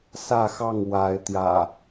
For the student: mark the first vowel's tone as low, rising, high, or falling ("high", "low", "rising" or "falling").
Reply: falling